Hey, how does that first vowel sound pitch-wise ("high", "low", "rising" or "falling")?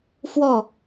falling